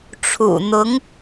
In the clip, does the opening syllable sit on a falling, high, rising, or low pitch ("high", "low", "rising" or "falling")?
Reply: low